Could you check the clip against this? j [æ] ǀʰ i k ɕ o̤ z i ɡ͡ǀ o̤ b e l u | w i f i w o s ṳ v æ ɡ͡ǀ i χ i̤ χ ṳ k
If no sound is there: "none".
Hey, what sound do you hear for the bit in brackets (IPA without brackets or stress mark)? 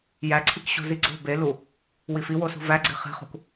æ